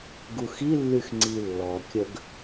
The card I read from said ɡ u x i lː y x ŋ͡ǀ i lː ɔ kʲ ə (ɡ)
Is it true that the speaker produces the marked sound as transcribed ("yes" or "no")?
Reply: yes